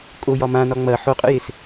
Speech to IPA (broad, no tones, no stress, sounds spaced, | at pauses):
kʼ o j ɒ m ã n ɒ ŋ͡m ɐ ħ o qʼ ə̰ j e s